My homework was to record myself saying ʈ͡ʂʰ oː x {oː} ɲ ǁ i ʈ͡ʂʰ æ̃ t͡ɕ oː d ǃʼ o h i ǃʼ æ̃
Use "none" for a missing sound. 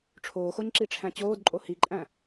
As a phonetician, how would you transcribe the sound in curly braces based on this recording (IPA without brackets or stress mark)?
o